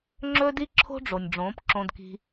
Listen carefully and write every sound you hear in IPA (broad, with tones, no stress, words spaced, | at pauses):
ŋ͡ǁɵː˦di˦ǁʰo̤˦ɖ͡ʐo˨nʲ ɖ͡ʐõː˨˦pǁõ˧dki̤˧